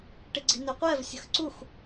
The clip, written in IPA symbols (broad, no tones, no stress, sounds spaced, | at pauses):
ʈ ɪ ɡ͡ǀ i̤ n ʏ qʷ ɛ v sʲ ə̤ x ǀ u x